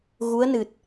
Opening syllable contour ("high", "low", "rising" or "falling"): rising